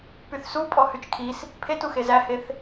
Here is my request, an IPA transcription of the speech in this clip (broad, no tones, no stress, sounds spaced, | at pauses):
p y θ s u pʼ ɔ h y t͡ʃ kʰ i s | pʰ e t u x e z æ h e θ